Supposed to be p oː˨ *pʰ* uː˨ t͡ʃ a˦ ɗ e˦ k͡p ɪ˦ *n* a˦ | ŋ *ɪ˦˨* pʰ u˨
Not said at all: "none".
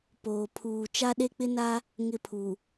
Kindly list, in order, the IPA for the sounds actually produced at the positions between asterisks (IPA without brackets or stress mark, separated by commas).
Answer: pʰ, n, ɪ˦˨